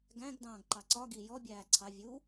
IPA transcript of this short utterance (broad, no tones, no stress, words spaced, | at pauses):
ɡæ̃ɡ dɑ̃ːɡǃɑǀɒ ɡi jɔbʲæː ǀʰɑ vʲu